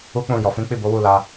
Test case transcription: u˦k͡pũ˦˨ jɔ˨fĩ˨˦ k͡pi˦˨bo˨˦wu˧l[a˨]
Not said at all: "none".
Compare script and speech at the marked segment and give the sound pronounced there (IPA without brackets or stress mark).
a˧